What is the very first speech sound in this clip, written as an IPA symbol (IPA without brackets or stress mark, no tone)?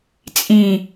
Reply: t͡sʼ